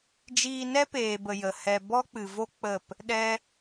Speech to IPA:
d͡ʒiː˧nɛ˦peː˨bə˨ jə˨hɛ˧ bɔ˦k͡pɨ˨vo˦ k͡pə˦˨p | ɗɛ˦

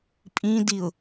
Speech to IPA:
pʼĩdiʊ̯

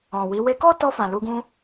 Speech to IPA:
ɔ̃˨wi˨˦ we˧kɔ˦tɔ˧fã˨ lu˧ɡũ˦

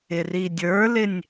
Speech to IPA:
ɪridʲə˞lɪnʲ

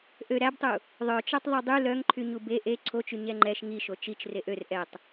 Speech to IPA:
ʔø ɾæbtˤu | ðˤœt͡ʃɛtˤ ðˤydˤy lœŋǃʰy ɲube ʔe ǀʰot͡ʃy ɲɛŋ͡ǃɛʃ ŋiʃo t͡ʃit͡ʃ reʔør ʔɛtˤ

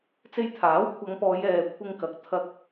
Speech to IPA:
t͡se˧jt̪ʰaː˨˥w kʷʰɐ˨˧ŋpɔː˨˧j ɛː˨kʷʰɪ˧ŋkɐ˨˥k̚ t̪ʰɐ˧k̚

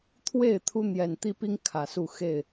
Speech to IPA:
t̪ʰwe˥˨ɪ̯ t̪ʰu˦n̪jɛ˨˩nt̪i˦pi˦ŋ kʰä˨˩su˥˨ xe˥˨ɪ̯

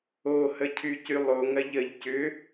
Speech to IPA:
ohə cʰycylˠoŋɐʎ əʎ cʏ

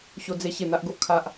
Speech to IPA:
ɕo˧d͡ze˧ ɕe˨˩n̪a˨ʔɡo˦ʔ kʰa˦ʔ

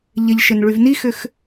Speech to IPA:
ʎɪʎʃɪn ɭyvnixʏx

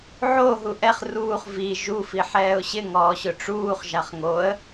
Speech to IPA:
ʕo ɦuʔɛχ ruːχ vi ʒu fiħɛːʊ̯ɕɪ ŋɔːɕʊʈ͡ʂuːχ ʒaχŋoə̯

